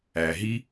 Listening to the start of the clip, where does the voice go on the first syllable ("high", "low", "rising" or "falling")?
low